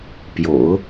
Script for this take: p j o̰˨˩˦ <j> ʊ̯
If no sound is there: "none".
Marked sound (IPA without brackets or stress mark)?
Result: none